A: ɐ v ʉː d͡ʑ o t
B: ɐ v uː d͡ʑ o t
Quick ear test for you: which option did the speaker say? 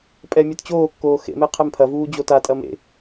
B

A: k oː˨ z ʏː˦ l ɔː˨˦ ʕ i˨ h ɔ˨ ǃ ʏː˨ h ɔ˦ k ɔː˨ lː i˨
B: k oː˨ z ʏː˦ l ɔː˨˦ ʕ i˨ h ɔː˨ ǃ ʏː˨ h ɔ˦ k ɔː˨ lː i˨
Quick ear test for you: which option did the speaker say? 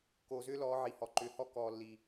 A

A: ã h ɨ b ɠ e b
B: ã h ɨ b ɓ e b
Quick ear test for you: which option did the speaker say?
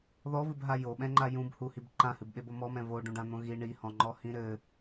B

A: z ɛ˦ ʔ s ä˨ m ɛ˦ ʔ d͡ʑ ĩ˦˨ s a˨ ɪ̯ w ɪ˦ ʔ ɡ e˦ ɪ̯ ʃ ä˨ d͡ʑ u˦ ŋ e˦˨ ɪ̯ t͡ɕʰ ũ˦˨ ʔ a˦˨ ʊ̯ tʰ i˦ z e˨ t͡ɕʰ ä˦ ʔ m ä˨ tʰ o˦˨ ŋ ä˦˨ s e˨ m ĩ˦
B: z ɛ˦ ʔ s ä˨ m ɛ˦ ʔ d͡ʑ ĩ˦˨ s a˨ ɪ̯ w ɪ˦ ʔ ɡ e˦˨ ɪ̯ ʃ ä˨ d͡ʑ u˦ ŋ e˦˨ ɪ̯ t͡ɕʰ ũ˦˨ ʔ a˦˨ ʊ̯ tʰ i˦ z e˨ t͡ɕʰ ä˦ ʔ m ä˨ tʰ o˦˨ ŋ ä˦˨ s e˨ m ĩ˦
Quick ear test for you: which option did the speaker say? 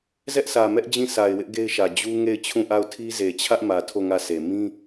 A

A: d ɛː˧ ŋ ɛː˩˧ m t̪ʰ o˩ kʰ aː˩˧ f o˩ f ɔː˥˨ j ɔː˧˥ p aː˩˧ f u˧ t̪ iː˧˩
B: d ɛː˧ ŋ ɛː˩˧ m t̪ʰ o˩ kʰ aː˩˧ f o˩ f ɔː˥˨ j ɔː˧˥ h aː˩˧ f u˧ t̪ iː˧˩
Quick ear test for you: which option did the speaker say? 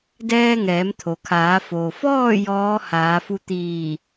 B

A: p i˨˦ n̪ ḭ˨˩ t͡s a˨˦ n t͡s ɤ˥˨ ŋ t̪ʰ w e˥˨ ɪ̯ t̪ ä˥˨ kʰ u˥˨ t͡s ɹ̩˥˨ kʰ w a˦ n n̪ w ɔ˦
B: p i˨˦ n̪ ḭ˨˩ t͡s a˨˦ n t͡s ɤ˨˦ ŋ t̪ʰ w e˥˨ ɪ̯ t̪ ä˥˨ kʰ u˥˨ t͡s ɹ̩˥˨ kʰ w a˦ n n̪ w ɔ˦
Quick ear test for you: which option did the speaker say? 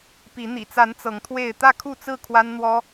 B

